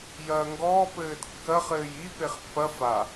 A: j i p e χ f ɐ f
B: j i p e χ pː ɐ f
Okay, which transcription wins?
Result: B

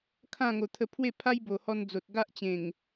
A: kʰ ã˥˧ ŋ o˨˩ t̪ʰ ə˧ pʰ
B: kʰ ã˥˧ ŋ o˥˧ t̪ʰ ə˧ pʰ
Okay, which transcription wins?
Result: A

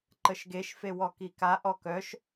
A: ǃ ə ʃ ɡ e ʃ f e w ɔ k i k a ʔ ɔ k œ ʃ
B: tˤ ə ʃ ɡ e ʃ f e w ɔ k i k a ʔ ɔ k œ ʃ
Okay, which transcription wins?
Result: A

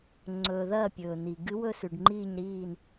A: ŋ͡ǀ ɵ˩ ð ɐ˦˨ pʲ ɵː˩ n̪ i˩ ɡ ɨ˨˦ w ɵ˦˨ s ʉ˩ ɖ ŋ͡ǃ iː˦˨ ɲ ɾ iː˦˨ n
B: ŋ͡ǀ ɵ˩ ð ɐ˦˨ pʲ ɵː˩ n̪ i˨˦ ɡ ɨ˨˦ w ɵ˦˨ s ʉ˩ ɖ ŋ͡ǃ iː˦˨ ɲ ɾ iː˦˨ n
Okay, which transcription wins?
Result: A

